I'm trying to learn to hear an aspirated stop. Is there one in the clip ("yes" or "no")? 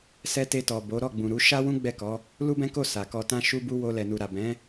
no